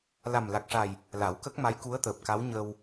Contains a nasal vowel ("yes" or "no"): no